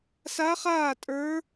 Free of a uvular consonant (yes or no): no